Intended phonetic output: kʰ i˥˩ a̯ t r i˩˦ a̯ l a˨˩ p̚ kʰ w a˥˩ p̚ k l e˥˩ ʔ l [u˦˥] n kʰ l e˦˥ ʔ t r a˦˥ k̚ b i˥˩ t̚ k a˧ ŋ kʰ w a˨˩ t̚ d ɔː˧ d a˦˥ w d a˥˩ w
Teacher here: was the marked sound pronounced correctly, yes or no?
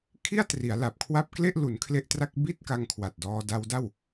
no